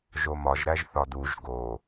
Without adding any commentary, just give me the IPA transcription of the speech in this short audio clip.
ʒomɒʒɾæʒ θɒduʒ ɡo

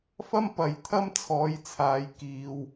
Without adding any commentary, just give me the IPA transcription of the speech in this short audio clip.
fɐ˥mpɐ˨jt̪ʰɐ˥m t͡sʰɔː˨˧jt͡sʰaː˨jkiː˨w

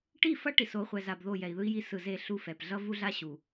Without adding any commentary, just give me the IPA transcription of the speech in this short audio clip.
ʈi˦˨fʌ˦ ʈi˨so˨˦χʷɛ˨za˨b ðo˦˨jɛ˨i̯ðɯ˦i̯ji˦ sɯ˨ze˦˨ ɬu˦fɛ˨p ɮʌ˦ vu˦ɮa˦ ɕu˨

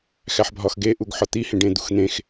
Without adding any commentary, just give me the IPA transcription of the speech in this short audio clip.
xæħbʱɒxɡe ʔuɡħɒt̪i hẽɖẽd̪uxn̪ẽx

